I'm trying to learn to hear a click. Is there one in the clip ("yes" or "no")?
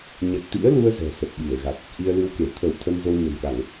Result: no